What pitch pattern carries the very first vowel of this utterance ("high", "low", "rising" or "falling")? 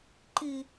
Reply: high